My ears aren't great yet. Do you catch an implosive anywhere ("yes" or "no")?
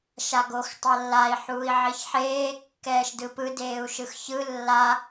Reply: no